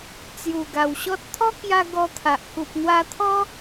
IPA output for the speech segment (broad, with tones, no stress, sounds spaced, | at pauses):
t͡s j u˨˩ ɡ a˨˩ w ɕ ɔ˦ t̚ t̪ʰ ɔ˦ k j a˧ ɡ ɔ˧ t̪ʰ a˨ ʔ k u˨ p̚ n̪ w a˧ t̪ʰ ɔ˦